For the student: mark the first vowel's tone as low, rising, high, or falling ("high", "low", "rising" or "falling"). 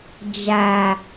low